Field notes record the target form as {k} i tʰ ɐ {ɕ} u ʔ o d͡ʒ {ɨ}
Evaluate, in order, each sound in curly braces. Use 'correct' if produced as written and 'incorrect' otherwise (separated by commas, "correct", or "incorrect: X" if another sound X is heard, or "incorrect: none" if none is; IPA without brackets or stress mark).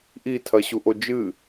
incorrect: ʔ, correct, correct